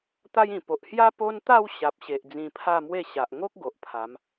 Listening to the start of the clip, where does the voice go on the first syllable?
high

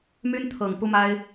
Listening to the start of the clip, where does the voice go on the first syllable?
high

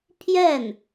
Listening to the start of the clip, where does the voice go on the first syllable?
falling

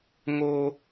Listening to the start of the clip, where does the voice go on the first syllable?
high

